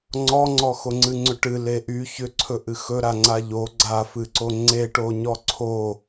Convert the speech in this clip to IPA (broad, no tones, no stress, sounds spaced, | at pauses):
ŋ͡ǀ ɔ ŋ͡ǀ ɔ x o ŋ͡ǀ ɨ ŋ͡ǀ ʏ ʈ ɨ l e ʔ y ç ʏ ǀʰ ɵ ʔ ɨ x ɵ ɾ a ŋ͡ǀ a ʎ o ɡ͡ǀ a f ɨ ǀ o ŋ͡ǀ e ʈ o ɲ ɔ ǀʰ o